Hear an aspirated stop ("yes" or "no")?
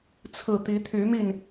yes